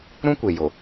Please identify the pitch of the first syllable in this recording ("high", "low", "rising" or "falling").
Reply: high